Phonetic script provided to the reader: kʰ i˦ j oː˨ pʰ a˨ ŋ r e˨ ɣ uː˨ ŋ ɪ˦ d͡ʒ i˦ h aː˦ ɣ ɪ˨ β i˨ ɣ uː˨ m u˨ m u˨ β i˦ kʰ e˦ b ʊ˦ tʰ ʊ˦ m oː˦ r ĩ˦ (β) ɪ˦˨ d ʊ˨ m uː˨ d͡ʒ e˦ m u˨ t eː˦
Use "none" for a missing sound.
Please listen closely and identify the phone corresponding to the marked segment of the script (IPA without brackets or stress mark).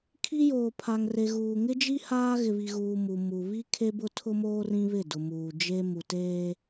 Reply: β